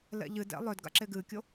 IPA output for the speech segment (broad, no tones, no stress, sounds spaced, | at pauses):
l ɛ̰ ʎ ɨ d ɛ̰ lˠ œ d ɡ a̰ ǁ e ɡ ɨː kʲ o